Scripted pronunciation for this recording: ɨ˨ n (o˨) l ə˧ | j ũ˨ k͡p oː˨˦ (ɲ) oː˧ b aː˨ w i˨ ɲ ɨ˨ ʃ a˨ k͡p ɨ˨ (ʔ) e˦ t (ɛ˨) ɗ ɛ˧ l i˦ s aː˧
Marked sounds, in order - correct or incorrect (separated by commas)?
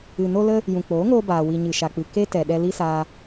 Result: incorrect, incorrect, incorrect, correct